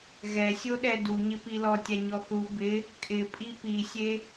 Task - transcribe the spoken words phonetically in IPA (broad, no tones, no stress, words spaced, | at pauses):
ɣɛsʲoɗɛ duɲɪpi lɔtʲaɲɔ θu bɪ | kʼɪpʼi pisʲe